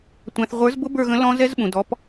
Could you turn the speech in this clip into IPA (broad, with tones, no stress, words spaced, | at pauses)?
tʷæ̃˨θʁʷə˞˨˥zbʊ˦˥ bə˞˦˨ɣə̃˨˥ lɔ̃˦˥ zɛ˦˥zɓũ˨dɔ˨˥p